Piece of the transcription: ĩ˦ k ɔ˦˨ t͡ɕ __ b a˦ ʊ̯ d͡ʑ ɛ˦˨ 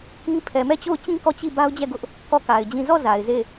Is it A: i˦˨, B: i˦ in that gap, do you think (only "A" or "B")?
A